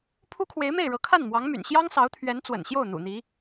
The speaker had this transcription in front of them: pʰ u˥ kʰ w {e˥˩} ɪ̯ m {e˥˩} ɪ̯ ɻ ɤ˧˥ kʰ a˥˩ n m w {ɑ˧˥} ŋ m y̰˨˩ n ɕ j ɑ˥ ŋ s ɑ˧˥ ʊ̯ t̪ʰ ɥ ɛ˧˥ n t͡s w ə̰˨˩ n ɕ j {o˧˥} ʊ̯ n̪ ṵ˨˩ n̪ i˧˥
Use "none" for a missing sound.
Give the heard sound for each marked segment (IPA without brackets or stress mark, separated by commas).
e˧˥, e˥˩, ɑ˧˥, o˥˩